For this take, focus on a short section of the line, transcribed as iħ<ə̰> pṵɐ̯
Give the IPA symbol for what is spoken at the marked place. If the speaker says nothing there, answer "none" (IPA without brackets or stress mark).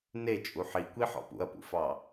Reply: ɔ̰